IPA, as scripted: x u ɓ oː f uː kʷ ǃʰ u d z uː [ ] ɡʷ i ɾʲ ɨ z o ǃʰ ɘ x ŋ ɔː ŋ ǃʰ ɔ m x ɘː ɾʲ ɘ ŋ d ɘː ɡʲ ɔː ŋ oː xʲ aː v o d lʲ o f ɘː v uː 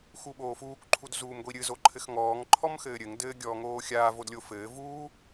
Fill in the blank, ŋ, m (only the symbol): m